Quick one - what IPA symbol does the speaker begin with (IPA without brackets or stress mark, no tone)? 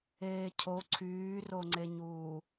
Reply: eː